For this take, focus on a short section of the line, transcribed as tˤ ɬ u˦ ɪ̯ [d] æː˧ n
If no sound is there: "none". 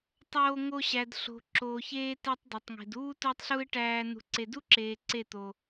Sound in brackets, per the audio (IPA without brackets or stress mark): ʈ